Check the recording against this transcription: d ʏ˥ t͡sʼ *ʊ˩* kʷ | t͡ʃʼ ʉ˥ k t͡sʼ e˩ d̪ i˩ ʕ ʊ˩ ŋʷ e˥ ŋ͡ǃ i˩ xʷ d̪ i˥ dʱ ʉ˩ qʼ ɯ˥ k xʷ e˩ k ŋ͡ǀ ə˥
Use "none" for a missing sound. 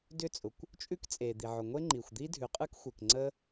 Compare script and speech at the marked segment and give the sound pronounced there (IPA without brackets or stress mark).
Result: ʊ˩